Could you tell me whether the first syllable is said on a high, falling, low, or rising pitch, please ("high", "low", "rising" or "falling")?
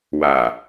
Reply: low